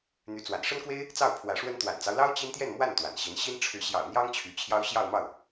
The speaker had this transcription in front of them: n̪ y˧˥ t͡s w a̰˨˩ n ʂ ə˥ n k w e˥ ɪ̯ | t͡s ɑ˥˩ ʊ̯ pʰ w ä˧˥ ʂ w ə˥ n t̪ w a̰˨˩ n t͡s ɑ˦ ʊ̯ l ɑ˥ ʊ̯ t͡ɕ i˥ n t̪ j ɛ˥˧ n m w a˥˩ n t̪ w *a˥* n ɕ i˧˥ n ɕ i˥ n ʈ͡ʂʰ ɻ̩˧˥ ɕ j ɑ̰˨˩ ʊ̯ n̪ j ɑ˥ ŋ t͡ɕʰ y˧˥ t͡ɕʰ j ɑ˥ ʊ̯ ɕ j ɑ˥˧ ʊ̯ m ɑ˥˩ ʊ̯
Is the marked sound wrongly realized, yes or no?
yes